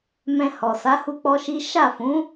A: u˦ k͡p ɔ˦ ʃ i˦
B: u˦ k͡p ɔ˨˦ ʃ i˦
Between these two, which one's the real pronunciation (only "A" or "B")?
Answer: A